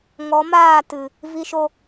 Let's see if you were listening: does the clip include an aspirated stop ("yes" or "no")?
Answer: no